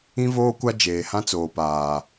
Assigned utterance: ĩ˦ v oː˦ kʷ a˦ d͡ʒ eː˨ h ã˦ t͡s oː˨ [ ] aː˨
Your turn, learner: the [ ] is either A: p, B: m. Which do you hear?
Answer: A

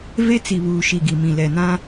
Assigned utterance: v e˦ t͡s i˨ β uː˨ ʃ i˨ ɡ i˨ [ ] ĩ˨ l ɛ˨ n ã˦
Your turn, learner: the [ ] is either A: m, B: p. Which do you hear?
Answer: A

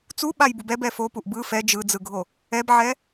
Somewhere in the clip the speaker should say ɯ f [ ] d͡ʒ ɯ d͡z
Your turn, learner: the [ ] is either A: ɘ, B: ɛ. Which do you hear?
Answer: B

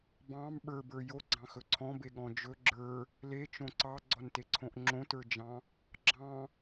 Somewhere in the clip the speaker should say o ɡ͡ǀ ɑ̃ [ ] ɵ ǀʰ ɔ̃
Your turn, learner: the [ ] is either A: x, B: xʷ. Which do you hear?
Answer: A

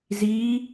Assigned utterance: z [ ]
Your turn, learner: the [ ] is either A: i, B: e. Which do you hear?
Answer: A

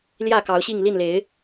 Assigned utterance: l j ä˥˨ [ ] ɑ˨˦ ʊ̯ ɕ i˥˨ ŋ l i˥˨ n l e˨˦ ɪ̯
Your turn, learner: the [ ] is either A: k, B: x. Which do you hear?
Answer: A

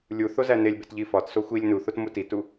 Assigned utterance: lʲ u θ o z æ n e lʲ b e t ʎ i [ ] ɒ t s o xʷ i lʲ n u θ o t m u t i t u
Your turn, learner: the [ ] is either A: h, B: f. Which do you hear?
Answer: B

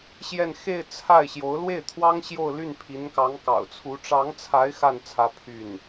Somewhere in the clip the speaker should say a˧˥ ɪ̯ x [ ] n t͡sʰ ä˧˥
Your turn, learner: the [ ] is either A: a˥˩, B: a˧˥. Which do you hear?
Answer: A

